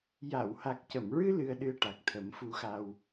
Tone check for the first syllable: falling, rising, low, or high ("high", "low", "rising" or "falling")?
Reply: low